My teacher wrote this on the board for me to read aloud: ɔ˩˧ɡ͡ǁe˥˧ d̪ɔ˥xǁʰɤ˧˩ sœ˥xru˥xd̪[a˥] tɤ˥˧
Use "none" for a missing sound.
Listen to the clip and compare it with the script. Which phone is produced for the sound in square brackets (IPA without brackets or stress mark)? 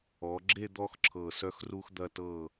ɐ˥